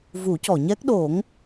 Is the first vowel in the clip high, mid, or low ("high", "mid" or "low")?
high